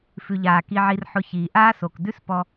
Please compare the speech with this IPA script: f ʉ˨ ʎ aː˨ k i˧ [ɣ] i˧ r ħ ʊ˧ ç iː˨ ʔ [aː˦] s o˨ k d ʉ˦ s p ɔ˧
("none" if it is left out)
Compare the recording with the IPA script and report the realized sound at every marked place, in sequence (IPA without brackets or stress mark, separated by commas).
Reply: ʕ, aː˦